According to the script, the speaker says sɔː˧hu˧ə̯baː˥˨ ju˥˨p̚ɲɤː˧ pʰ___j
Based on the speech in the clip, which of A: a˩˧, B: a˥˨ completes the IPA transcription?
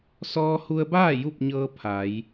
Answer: A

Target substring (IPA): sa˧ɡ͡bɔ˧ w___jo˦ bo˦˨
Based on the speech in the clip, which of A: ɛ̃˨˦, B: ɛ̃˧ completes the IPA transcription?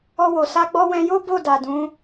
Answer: B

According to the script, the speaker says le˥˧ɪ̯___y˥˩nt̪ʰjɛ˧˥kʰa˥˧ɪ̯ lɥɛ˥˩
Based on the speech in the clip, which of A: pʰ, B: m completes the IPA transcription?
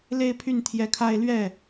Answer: A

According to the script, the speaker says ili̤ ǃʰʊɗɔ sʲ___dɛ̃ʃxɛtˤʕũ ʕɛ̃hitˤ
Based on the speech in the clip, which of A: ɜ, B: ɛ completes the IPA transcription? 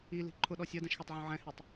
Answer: A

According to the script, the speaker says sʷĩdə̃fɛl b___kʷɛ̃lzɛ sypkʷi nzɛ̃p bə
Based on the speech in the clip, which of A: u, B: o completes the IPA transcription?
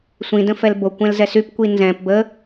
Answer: B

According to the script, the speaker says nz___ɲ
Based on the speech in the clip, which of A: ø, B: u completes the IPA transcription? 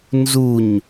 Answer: B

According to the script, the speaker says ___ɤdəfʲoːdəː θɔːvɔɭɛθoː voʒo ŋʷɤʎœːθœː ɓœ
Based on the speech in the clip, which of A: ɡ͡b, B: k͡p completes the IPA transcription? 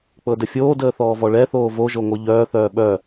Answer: B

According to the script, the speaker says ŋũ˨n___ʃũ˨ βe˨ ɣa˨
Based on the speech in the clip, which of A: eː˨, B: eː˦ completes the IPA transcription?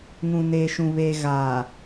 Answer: A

